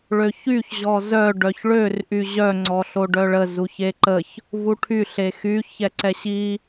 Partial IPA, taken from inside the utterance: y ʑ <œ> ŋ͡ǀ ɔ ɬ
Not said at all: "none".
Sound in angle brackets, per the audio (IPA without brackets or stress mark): œ